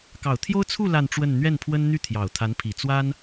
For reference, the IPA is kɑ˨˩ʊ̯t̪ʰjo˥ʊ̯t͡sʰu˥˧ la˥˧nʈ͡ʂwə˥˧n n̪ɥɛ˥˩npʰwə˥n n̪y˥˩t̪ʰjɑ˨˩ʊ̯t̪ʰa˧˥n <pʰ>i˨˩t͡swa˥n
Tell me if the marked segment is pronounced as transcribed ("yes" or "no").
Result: yes